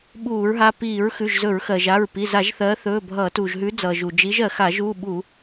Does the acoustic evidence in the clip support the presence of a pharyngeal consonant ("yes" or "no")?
no